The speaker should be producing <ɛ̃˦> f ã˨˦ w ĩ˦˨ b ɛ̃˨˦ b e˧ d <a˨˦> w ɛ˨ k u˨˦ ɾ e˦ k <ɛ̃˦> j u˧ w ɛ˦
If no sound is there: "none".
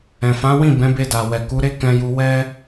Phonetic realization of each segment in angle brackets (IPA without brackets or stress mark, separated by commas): ɛ̃˨, a˨, ɛ̃˧